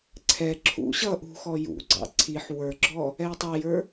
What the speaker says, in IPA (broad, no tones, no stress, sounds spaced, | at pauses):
ǀʰ ɛ ǁʰ ṵ ɕ ʌ ʔ ṳ x ɔ j ṵ ɡ͡ǀ ɑ̰ ǀʰ i ħ w ə˞ ɡ͡ǁ ɔ | ɛ i̯ tˤ æ j ə˞